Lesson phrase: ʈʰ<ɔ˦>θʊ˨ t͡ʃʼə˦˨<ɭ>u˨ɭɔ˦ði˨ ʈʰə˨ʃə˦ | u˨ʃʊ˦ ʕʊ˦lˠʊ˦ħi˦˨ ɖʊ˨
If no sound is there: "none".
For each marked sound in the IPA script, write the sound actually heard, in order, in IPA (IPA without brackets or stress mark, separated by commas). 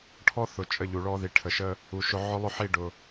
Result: ɔ˦, ʎ